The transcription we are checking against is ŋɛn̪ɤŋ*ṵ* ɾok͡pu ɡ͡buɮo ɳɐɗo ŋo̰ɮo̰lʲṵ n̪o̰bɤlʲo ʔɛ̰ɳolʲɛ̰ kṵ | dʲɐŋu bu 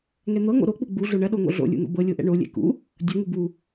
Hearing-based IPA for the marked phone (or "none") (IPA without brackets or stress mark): o̰